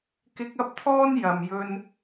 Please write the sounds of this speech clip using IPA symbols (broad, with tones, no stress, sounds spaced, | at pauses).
k ɪ˧ k̚ ɐ˥ p̚ t̪ʰ ɔː˥ n j ɐ˨ m j ɵ˧ n